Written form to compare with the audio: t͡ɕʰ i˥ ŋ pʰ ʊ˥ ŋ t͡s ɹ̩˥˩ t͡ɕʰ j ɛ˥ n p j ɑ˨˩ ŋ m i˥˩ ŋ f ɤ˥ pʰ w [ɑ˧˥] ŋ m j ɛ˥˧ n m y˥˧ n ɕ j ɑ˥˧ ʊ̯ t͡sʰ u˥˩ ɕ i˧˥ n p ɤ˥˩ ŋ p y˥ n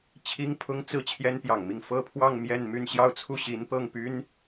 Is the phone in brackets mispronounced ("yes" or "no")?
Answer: yes